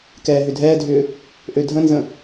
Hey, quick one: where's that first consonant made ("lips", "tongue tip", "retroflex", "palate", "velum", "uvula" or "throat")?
velum